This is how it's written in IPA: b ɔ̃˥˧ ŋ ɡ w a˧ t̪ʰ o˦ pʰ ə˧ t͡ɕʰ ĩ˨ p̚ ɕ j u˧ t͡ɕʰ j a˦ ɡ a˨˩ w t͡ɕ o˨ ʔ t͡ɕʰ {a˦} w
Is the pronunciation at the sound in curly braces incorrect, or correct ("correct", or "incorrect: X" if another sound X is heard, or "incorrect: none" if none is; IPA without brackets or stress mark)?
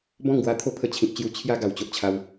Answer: incorrect: a˧